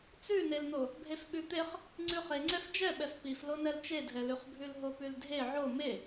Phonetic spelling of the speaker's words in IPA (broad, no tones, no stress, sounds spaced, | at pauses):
t͡s ʉ n e l n̪ o | bʱ e f ɓ ʉ t̪ e χ | ŋ͡ǀ ʉ χ e ŋ͡ǀ ɛ f d͡ʒ ɛ ɓ ɛ f p i f l o n ɛ l t͡ʃ e dʱ ɛ l ʉ χ bʱ ʉ l ɦ o p ʉ l dʱ e ʕ o m e